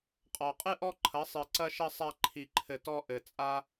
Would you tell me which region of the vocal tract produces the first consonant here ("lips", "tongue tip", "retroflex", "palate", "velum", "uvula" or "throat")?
uvula